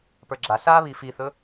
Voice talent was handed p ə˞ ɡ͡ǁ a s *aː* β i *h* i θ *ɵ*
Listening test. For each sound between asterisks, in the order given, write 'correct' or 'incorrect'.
correct, incorrect, correct

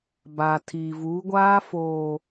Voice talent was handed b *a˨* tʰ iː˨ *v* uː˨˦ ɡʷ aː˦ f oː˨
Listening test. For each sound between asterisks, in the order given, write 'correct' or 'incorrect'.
incorrect, correct

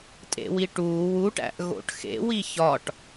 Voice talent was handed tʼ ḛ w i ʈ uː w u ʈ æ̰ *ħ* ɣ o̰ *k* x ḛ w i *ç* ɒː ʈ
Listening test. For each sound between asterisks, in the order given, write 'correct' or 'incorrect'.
incorrect, incorrect, correct

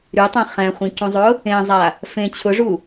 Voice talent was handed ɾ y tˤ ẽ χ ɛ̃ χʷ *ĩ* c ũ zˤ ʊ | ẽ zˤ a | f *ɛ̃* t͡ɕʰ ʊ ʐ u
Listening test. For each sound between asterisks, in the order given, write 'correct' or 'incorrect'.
correct, incorrect

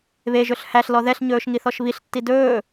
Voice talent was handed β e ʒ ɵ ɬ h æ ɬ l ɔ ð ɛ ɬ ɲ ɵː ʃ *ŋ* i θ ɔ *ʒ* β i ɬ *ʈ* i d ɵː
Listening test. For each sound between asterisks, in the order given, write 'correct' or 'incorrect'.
correct, incorrect, incorrect

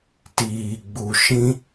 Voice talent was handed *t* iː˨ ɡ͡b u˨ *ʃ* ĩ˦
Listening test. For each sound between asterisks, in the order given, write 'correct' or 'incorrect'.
correct, correct

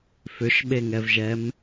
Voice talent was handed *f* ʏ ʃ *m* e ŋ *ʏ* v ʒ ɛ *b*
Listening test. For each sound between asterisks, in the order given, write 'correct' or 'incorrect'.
correct, incorrect, incorrect, incorrect

